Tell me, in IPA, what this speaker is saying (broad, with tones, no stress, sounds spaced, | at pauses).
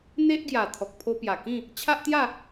n̪ e˦ ʔ ɡ j a˨˩ t̪ʰ ɔ˨ k̚ pʰ o˧ p j a˨˩ k ĩ˥˧ | t͡ɕʰ a˦ ʔ t̪ j a˥˧